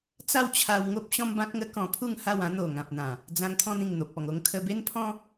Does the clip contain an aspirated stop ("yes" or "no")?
yes